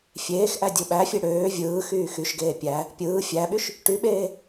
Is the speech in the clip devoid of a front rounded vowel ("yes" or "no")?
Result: no